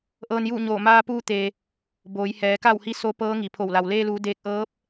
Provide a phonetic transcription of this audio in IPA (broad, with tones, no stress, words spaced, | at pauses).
ʔɤː˧njuː˥˨ɲoː˧˩ maː˧puː˧ t̪e˩ | boː˩˧jhɛː˩˧ka˥˨whi˧˥ so˧˥ pɤː˧˥ŋi˩pʰo˧˩wla˩w leː˧luː˩˧ deː˧k̚ʔɤː˧˥p̚